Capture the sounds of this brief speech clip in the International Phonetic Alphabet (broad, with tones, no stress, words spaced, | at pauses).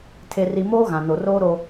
tʰe˨ri˨ moː˦ɣã˨ no˨roː˦ ɾo˦